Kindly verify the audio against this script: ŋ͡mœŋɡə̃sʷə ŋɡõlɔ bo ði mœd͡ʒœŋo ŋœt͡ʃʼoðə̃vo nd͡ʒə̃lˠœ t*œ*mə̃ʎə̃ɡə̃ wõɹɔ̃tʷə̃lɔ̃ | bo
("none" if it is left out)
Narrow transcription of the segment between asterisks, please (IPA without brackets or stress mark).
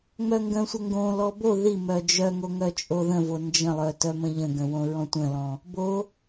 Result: œ